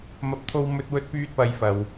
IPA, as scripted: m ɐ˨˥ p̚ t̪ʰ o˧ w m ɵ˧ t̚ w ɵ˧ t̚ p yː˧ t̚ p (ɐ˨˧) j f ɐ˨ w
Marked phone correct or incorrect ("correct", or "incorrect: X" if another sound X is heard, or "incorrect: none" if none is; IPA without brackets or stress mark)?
correct